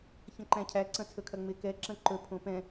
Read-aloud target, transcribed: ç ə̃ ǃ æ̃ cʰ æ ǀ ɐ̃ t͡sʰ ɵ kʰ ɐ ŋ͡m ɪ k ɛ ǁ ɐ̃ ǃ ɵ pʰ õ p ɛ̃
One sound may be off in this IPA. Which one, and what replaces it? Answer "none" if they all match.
none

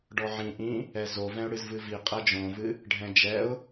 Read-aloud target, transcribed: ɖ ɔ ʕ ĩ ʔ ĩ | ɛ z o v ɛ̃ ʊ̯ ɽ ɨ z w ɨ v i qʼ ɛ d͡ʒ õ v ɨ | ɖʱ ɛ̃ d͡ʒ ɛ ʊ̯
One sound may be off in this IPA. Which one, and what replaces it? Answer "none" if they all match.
w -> v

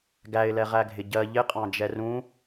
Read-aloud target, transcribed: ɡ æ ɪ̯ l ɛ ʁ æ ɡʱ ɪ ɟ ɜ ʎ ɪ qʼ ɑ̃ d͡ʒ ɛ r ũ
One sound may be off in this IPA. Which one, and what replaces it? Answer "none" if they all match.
none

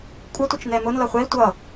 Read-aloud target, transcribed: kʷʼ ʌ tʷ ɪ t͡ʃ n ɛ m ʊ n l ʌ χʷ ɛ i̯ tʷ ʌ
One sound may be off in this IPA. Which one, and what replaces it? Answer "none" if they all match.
none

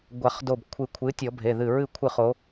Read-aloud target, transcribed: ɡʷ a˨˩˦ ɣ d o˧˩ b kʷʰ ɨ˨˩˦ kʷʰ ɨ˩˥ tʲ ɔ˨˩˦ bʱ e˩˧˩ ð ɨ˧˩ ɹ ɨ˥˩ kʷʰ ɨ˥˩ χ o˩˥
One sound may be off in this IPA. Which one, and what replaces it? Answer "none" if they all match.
ɣ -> χ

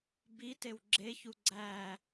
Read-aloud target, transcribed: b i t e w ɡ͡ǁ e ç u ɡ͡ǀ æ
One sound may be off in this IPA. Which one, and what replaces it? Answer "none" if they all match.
none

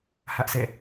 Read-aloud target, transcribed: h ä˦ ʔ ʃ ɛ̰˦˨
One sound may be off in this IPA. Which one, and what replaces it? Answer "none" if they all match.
ʃ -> s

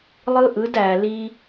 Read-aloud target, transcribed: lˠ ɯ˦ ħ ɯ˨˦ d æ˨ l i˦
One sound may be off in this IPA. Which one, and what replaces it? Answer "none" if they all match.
ħ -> ʔ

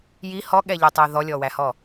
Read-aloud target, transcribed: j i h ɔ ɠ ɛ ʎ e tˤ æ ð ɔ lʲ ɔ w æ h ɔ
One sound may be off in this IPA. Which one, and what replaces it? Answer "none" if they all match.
none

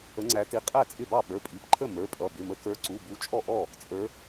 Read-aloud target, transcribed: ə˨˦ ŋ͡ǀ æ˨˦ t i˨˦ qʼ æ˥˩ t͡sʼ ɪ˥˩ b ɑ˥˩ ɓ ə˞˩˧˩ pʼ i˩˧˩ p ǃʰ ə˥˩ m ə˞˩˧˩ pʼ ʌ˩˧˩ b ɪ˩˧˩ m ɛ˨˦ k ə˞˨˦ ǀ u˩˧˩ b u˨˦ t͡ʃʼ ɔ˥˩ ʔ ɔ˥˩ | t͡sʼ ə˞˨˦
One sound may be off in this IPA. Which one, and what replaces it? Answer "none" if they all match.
ɛ˨˦ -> ə˨˦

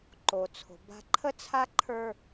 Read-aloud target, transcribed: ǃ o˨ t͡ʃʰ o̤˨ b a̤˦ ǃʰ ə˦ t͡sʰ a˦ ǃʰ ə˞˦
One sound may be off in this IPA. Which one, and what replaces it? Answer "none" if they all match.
t͡ʃʰ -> t͡sʰ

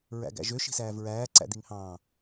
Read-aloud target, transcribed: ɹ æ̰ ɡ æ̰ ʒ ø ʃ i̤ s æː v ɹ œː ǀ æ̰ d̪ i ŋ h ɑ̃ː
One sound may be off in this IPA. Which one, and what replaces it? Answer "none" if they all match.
œː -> æː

